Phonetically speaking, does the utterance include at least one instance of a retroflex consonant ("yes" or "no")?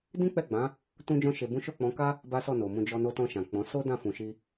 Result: no